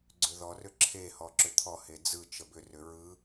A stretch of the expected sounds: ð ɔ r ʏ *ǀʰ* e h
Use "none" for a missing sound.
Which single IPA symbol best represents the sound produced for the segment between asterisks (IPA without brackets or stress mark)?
ǁʰ